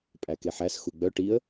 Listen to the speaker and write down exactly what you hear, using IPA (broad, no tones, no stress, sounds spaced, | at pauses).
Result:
pʼ æ k e ħ æ s x u ɡ͡b œ ʈ i ə̯